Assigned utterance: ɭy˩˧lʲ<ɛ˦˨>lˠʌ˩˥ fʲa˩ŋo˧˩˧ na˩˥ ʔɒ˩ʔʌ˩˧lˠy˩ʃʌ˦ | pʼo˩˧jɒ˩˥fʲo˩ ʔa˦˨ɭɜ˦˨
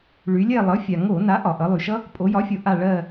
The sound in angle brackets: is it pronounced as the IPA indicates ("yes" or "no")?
yes